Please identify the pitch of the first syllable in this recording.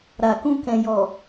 low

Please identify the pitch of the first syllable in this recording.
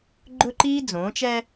high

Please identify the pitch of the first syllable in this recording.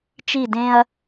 falling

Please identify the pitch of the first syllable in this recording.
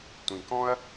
low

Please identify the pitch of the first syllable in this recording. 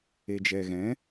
low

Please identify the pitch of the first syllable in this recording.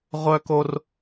high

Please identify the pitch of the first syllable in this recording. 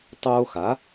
high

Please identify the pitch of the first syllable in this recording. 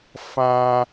high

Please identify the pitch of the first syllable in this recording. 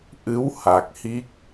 rising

